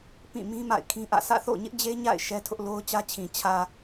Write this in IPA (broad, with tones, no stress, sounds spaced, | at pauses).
p ĩ˦˨ m ĩ˦ m a̰˦˨ ɪ̯ kʰ ĩ˦ ʔ ä̰˦˨ s ä̰˦˨ θ o̰˦˨ ɲ ɪ˦ ʔ d͡ʑ e˦ ɲ a̰˦˨ ɪ̯ ʃ ɛ˦ tʰ ʊ˦ ʔ l o˦ ʊ̯ t͡ɕ ä˦ t͡ɕʰ ĩ˨ t͡ɕʰ ä˨